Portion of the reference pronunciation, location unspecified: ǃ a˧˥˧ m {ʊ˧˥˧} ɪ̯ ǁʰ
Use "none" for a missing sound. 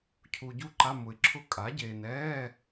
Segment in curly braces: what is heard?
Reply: ʊ˨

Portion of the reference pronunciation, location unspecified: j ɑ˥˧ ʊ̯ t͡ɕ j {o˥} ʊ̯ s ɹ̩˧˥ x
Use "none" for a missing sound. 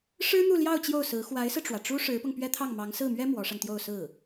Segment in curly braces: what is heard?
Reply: o˥˩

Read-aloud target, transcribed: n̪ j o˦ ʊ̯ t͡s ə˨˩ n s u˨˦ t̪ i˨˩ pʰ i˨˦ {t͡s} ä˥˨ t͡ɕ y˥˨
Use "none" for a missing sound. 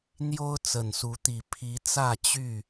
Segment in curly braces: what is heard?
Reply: t͡s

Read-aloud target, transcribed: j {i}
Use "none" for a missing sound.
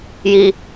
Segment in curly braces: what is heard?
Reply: i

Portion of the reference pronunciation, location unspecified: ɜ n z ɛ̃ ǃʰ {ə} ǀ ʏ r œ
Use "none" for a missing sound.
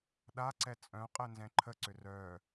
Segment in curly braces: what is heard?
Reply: ə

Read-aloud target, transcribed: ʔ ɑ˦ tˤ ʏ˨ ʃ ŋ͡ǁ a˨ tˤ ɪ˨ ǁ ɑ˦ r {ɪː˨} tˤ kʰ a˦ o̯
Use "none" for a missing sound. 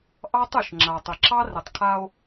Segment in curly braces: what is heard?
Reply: ɪ˨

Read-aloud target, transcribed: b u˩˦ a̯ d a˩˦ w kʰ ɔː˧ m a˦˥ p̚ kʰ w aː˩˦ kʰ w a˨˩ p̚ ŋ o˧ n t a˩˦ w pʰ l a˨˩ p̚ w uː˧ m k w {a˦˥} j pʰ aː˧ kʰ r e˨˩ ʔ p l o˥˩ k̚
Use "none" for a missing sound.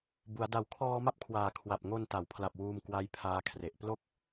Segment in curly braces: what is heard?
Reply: a˦˥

